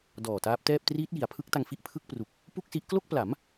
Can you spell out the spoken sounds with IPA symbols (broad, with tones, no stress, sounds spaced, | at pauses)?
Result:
d ɔː˨˩ t aː˦˥ p̚ t ɛː˥˩ p̚ t r iː˦˥ t̚ j i˩˦ a̯ pʰ ɯ˦˥ k̚ t a˧ ŋ f i˥˩ ʔ pʰ ɯ˥˩ k̚ p r u˨˩ k̚ | p u˥˩ k̚ s i˦˥ ʔ k l o˥˩ k̚ p l a˩˦ m